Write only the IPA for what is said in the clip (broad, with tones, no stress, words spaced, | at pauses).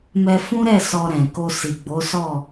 mɛ˧fũ˦ɾɛ˦˨ sɔ˧ɾɛ̃˨ko˧ si˨ɡ͡bo˨˦sɔ˦˨